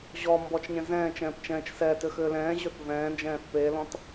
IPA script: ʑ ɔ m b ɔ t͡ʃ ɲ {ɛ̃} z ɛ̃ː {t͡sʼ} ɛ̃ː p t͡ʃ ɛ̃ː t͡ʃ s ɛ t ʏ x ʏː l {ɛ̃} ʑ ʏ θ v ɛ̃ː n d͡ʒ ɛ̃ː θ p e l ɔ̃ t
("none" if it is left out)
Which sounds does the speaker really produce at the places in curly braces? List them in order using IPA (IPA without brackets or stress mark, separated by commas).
ɛ̃, t͡ʃ, ɛ̃ː